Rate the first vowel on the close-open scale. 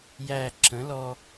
open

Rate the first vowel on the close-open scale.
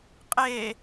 mid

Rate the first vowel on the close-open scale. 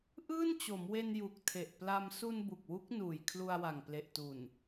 close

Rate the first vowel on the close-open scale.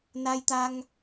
open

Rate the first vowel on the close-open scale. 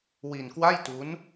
close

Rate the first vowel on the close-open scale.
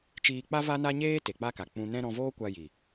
close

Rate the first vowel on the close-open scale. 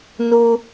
close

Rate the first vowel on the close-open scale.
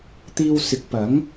close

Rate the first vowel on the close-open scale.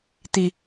close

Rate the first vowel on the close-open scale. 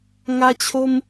open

